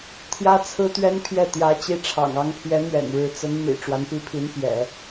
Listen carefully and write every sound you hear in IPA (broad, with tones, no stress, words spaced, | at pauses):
t̪ʰjä˥t͡sʰɹ̩˥t̪ɥɛ˥npʰjɛ˥˩ t̪jä˧˥t͡ɕi˧˥ ʈ͡ʂʰɑ̰˨˩ŋɑ˧˥ŋpʰjɛ˧˥ n̪ɥɛ̰˨˩nɻɻ̩˧˥ t͡sə˧˥n mḭ˨˩ ʈ͡ʂwa˧˥npi˧˥pʰi˧˥npjɛ̰˨˩˦